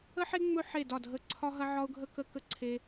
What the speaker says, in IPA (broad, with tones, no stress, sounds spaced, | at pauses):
ə˥ ħ e˥ ŋ͡m ɵ˥ ħ e˦˨ d ɒ˦˨ dʱ ə˦˨ ǀʰ ɒ˥ ɦ ɐ˥ ʕ ɒ˥ ʊ̯ ɡʱ ə˥ k ə˥ k ə˥ ǀʰ e˥